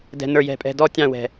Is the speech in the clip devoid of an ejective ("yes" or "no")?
no